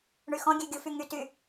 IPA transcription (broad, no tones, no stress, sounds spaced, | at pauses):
ɳ y x ɔ̃ ɡʲ ø ɡʲ u f y ŋ y t y